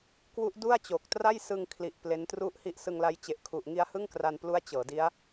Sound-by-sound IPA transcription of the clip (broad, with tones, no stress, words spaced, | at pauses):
kwu˦˥ʔdu˥˩a̯t͡ɕo˨˩k̚tra˥˩j sɯ˧ŋkʰli˨˩ʔ ple˦˥n tru˦˥ʔhi˦˥ʔsɯ˧ŋla˦˥j t͡ɕe˨˩ʔkʰu˨˩ʔŋi˧a̯ hɯ˥˩ŋkra˧nplu˦˥a̯ t͡ɕɤː˩˦di˦˥a̯